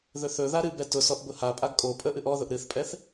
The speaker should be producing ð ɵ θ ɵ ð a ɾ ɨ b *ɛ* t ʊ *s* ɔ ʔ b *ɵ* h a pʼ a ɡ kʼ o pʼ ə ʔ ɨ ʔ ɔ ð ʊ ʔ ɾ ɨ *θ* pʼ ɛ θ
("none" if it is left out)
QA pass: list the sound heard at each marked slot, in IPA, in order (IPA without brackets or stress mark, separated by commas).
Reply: ɛ, s, ʊ, θ